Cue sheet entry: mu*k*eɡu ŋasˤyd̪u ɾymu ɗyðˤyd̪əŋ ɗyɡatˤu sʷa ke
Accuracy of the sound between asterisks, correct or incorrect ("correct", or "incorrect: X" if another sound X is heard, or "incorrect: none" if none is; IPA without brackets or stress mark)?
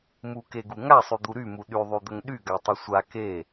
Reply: correct